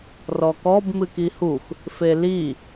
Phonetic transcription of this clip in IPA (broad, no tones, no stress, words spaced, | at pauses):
rɔkɔb mɨkihux | feli